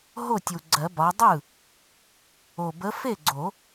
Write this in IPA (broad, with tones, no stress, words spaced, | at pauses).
ɦo˥˩tʲu˨˩ɡ͡ǀɜ˨˩˦ bɒ˨˦dˤɯ˥˩ | o˨˩bə˨˦ fe˥˩ɡ͡ǀo˨˩˦